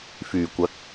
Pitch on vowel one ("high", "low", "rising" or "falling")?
low